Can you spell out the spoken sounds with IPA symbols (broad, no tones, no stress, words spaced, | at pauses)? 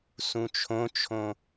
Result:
sũt͡ʃʰõt͡ʃʰõ